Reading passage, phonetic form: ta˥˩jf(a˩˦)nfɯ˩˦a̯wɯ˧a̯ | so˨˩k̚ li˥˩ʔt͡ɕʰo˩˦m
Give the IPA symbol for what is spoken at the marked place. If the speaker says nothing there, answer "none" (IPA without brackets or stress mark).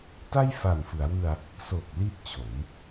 a˨˩